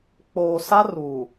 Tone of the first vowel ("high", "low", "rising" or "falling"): low